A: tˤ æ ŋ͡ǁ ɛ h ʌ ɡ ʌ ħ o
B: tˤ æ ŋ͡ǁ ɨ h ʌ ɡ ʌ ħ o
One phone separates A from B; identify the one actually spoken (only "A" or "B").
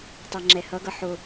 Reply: A